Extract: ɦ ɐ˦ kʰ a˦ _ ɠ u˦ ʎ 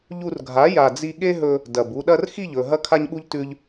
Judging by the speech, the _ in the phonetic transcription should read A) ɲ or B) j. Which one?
A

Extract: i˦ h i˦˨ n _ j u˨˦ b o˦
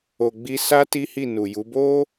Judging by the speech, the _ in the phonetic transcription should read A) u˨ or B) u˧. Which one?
A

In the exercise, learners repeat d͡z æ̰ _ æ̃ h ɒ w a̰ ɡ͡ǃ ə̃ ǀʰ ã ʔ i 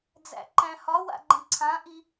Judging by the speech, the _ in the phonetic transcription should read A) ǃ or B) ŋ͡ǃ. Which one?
A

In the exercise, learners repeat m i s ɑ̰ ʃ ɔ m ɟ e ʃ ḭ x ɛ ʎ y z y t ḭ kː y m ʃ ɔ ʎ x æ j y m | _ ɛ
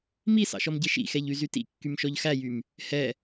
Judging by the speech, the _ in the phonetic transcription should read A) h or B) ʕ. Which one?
A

